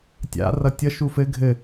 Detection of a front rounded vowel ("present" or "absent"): absent